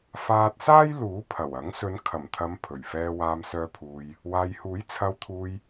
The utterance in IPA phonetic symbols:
faː˧t̚saː˥jluː˨˥ pʰɐ˨˩w ɐ˨˥ŋ sɵ˨˧nkʰɐ˨˩mt̪ʰɐ˨˧m pʰɵ˨˩ɥ fɛː˧waː˧msœː˧pʰuː˨j | waː˨jhuː˨˥j t͡sʰɐ˨˧wt̪ʰuː˨j

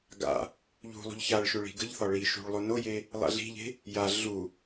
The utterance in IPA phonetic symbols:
ɡa̰ | ʎṳlˠṳʎ çaɭʃʏ ɭi̤ɡəʎθɒ ɭi ʃṳɭlˠo noje | lˠa̰ɮi̤ʎe̤ | ja ɮu

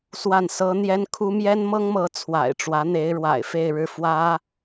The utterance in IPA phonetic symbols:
swa˥˩nsɤ˥ n̪jɛ˥nkʰu˥ mjɛ˥nmɤ˥ŋmɤ˧˥ t͡sʰwa̰˨˩ɪ̯ʈ͡ʂwä˧˥n̪e˧˥ɪ̯ ɻwa̰˨˩ɪ̯fe˥˧ɪ̯ ɻɻ̩˥˩fwä˥

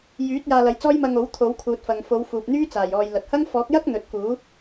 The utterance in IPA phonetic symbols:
jyː˨˥t̚ jaː˧lɐ˨˥jt͡sɔː˥j mɐ˧ŋo˨˥w t̪ʰo˨˥wkʰuː˨t̚fɐ˨ŋ fo˨˧wfuː˨p̚n̪yː˥t͡saː˨˩j ɔː˨j lɐ˨t̚hɐ˥ŋ fɔː˨˥k̚jɐ˥k̚ n̪ɵ˧t̚ kuː˨˥

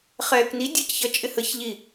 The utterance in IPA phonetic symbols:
χɛːkni dʲʌcçʌ t͡ʃʼɪhəç ʎi

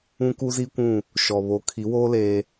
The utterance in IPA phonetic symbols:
ũ˦ ku˦zi˦kʷũ˦˨ | ʃɔ˨ βo˨˦kʰi˨˦woː˦ leː˦

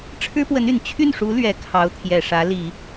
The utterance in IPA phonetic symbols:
ʈ͡ʂʰɻ̩˥pwə˧˥n y˨˩n t͡ɕʰy˥˩nʂu˧˥ lɥɛ˨˩ kʰɑ˧˥ʊ̯t̪ʰjɛ˨˩ʂä˧˥ li˨˩˦

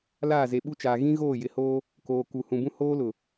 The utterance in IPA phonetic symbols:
laː˦˨ze˨ɓu˦t͡ʃaː˨ ɣĩ˦ɣoː˦˨jɪ˨hoː˦ | koː˨ku˨ hũ˨bũ˦ hoː˦lʊ˨

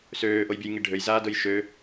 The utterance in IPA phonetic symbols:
søːʔojbʲɐjŋi ɖʱøjzaːdʊj ʃø

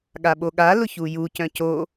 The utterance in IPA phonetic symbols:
ɠaɓoɠa lʊçuju cœ̃co

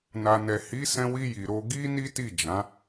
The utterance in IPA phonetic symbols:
na˨nɛ˨ hi˨˦sɛ̃˧ wi˧ ji˨ɾo˧ ɡi˦ni˦ti˦˨ d͡ʒã˨˦

